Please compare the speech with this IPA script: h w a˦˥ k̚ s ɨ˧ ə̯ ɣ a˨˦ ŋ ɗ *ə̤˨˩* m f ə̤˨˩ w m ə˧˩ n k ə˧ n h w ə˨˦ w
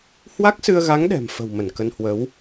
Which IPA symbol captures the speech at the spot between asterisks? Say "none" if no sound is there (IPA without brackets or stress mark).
ɛ̤˨˩